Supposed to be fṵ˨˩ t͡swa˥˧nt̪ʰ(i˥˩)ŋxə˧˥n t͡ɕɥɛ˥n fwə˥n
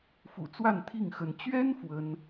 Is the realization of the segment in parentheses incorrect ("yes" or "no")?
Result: no